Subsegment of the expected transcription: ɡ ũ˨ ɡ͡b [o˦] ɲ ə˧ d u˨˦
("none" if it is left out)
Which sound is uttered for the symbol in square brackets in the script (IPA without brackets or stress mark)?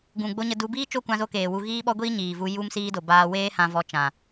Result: o˧